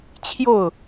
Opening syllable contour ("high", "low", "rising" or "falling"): falling